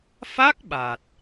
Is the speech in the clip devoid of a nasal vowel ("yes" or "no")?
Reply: yes